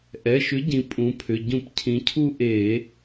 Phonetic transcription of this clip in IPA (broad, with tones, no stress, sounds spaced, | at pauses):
ʔ ɛ˩˧˩ ʃ ʏ˨˥ ɟ ĩ˩˧ pʼ ũ˩˧ pʰ ʏ˩˧˩ ɟ ũ˧˩˧ p cʰ ĩ˩˧ cʰ u˦˨ ʔ e˧˩˧